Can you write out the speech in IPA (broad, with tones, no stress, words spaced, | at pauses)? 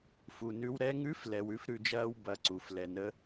fu˩nʉ˧w ɾɛ˧ŋʉ˧˥flɛ˩w ʉ˥fɾʉ˧d͡ʒɐː˥w bɐ˧˥ǀu˩˧f lɛ˩nə˧˥